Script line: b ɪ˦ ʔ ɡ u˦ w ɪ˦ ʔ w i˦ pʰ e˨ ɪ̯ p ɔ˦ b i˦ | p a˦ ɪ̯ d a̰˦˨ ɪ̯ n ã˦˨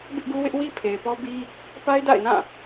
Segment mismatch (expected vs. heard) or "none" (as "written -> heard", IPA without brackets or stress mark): none